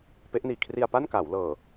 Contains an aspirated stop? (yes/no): yes